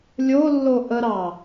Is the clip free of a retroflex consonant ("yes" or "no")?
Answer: yes